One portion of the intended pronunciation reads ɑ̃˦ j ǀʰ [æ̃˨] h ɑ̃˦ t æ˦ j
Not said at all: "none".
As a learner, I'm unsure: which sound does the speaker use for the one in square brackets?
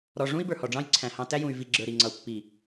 æ̃˨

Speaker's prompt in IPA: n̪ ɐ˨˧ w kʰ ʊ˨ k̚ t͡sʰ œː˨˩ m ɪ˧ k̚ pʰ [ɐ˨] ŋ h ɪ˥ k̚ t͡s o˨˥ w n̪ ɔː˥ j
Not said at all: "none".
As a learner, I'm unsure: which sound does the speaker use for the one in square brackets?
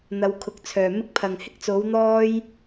ɐ˨˩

